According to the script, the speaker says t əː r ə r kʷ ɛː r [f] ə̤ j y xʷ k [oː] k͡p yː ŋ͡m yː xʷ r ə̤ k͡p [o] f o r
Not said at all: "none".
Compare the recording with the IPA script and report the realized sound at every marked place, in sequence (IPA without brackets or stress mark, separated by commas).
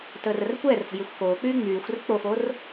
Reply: f, oː, o